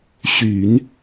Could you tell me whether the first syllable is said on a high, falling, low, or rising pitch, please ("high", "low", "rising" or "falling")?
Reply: low